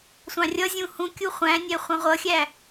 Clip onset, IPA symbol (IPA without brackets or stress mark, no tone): sʷ